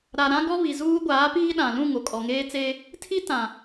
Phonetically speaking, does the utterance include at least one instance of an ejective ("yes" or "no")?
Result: yes